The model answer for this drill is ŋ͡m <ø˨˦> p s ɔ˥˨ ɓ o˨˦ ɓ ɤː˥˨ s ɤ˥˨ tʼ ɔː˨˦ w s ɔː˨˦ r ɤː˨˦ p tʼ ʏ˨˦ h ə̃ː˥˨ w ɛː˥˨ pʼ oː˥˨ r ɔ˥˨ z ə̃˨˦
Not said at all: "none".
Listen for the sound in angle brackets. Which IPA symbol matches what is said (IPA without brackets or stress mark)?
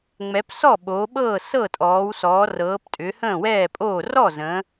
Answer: ɛ˨˦